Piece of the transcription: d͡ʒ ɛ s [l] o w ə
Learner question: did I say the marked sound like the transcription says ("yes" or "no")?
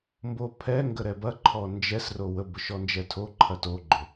no